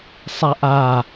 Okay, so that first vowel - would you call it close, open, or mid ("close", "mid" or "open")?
open